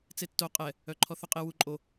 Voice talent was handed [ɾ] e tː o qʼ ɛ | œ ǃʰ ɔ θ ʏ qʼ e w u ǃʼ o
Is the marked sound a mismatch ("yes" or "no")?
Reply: yes